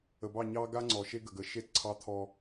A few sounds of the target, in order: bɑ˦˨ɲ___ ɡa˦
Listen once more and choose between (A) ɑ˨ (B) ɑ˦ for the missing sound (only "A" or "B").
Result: B